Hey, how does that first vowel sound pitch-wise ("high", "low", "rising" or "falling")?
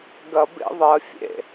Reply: low